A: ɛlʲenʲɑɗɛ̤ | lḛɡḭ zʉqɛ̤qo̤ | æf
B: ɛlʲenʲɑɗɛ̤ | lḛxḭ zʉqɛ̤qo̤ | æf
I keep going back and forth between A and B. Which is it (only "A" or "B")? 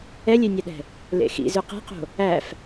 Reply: B